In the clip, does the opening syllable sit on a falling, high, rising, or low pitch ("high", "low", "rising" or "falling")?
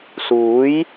rising